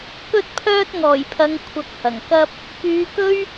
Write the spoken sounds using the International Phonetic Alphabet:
k ɵ˥ t̚ pʰ œː˥ t̚ ŋ ɔː˨˩ j pʰ ɐ˨˧ ŋ kʷʰ ɐ˧ k̚ h ɐ˨˩ ŋ k ɐ˥ p̚ | k yː˨˧ k ɵ˥ ɥ

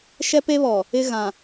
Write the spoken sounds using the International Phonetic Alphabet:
ʃ ɛ˦ p e˦ β ɔ˨ | ɪ˦ ɣ ã˨

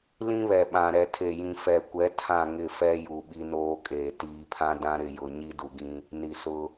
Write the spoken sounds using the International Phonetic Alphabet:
l ĩ˦ β ɛ˨ ɓ ã˨ ɾ ɛ˨ tʰ e˨ j ĩ˨ f ɛ˨ kʷ ɛ˨˦ tʰ ã˦˨ ŋ ɪ˦˨ f ɛ˦ j u˨ ɓ i˦ n oː˦ kʼ eː˨ t iː˨ pʰ ã˦ d ã˦ ɾ ɪ˦˨ j ʊ˨ ɲ i˦ d u˨ ɡ ĩ˦ | n i˨ s ʊ˦

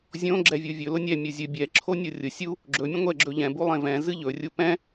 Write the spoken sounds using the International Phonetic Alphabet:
zʲ õ ɡ͡ǁ ɛ vʲ u vʲ ɵ l ʊ nʲ ɛ mʲ u zʲ ɨ bʲ ɛ ǁʰ o nʲ o rʲ ʊ sʲ u | ɡ͡ǁ ɵ mʲ ə̃ ŋʷ ɛ ɡ͡ǁ ɵ ʎ ɛ̃ b u lˠ ẽ v ɛ̃ z ɨ ʎ ɵ rʲ u p ɛ̃

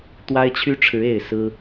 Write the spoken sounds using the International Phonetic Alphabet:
t̪ w a˦ ɪ̯ t͡ɕʰ y˦ ʈ͡ʂʰ ɻ̩˨˦ e˥˨ ɪ̯ s ɹ̩˦

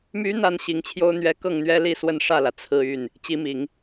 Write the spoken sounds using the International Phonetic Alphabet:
m y˧˥ n̪ a˥ n ɕ i˧˥ ŋ t͡ɕʰ j o˥ ʊ̯ n̪ ɥ ɛ˧˥ k ɤ˥˩ ŋ n̪ ɥ ɛ˥ l i˥˧ s w ə˥˧ n ʂ ä˥˩ l ä˩ t͡sʰ ɹ̩˥˧ y˥˩ n | t͡ɕ i˧˥ m i˨˩˦ ŋ

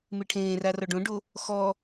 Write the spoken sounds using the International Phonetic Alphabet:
m e ʈʰ ẽː r a r ɔ ɖ õ ɖ o | x ɔ

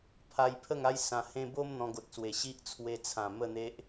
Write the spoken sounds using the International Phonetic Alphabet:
pʰ a˧ j pʰ ə˥˧ ŋ a˦ j s ã˧ h ẽ˦ b o˦ m n̪ ɔ̃˧ ɡ o˨ t̚ s w e˨˩ ɕ i˦ ʔ t͡sʰ w e˧ t͡sʰ ã˨˩ m ə˥˧ n̪ e˦ ʔ

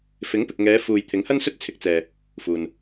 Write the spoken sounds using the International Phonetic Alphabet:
f ɪ˨˥ ŋ p ɪ˨ k̚ ŋ ɛː˨˧ f uː˨ j t̪ʰ ɪ˨˥ ŋ h ɐ˥ n s ɵ˥ t̚ t͡sʰ ɪ˧ k̚ t͡s ɛː˨ | f uː˨ n

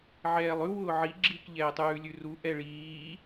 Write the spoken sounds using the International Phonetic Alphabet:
ʕ ɛː lˠ ʉ w ʊː ʕ i ɡ͡ǁ i k ʎ ɛː tˤ ʉː lʲ ʉ r u ʔ ɛ ɭ iː

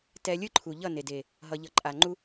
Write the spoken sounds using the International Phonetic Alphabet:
t ɛ˧ lʲ ɯ˦ ǃʰ u˨ ʎ ʌ˦˨ n e˨ d e˨ | ɦ ʌ˨ ʎ ʌ˨ ǃʼ a˨ ŋ͡ǃ u˦

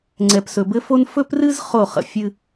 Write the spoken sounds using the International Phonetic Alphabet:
ŋ͡ǀ ɛ˨ p s ɵ˨ b ɘ˦ f o˦ n f ɵ˦ p r ɨ˦ z χ o˦˨ χ ə̰˨ fʲ ɨ˦

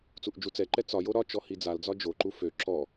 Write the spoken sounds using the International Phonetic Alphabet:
t͡s u ʔ d͡ʒ u t͡s ɛ ǃ ɛ t͡s ɒ j o ɾ ɒ t͡ʃ ɔ h i d͡z a l d͡z ɒ d͡ʒ o ǃ u f ø ǁ ɔ

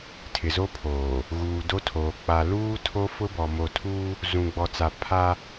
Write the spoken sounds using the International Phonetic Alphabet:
tʰ ɪ˨ z o˦ pʰ oː˨ | ɣ uː˨ d o˦ tʰ oː˨ k͡p a˨ l uː˦ tʰ o˦ f ʊ˦ b ɔ˨ m o˨ tʰ uː˦ | z ũ˨ ɡ͡b ɔ˨ t͡s a˨ pʰ a˦

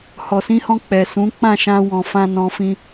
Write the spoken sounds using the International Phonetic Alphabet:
h ɔ˨ s ĩ˧ h ɔ̃˧ k͡p ɛ˨ s ũ˨˦ k͡p ã˦˨ ʃ ã˧ w ɔ̃˨ f ã˧ n ɔ̃˧ f ĩ˧

